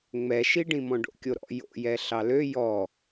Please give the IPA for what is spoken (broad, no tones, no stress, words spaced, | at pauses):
ŋ͡mɛʃiɖĩmɔ̃ ɖo̰kʲoɾɔ̰ jo̰jɛ ɬɑlø jɔ